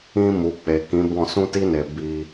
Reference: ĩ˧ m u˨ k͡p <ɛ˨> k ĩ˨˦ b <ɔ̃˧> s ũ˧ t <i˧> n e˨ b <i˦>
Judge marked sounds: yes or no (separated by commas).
no, no, yes, no